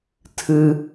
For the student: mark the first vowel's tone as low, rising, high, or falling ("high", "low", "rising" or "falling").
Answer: high